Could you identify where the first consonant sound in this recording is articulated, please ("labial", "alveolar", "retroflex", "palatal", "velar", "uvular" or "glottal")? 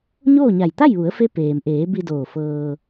palatal